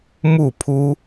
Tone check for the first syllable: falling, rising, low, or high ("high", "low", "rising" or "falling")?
falling